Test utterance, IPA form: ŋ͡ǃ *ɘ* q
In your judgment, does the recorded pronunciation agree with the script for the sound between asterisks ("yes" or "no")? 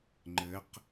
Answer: yes